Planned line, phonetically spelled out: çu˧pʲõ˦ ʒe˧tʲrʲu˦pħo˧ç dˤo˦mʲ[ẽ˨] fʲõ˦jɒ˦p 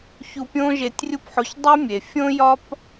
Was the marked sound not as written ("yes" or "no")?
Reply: yes